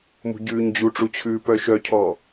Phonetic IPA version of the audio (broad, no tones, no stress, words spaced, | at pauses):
mṳɟʉːɲd͡ʑuʈ͡ʂu t͡ɕʰʉːpœʃœcʰɔ